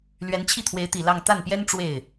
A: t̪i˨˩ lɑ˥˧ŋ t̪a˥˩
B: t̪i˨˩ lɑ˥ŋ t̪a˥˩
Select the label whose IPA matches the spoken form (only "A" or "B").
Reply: A